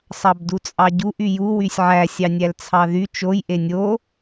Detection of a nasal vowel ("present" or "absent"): absent